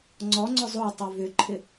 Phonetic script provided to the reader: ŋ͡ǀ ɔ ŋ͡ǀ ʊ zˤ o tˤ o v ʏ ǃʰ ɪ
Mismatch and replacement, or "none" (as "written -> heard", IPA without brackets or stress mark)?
none